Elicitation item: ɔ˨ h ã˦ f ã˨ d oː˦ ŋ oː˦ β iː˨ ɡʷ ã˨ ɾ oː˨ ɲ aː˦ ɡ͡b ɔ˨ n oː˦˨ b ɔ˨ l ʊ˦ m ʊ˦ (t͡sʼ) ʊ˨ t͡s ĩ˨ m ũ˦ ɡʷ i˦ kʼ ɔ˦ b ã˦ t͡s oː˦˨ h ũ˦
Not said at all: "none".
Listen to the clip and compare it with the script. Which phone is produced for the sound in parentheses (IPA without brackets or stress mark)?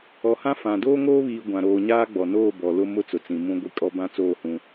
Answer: t͡s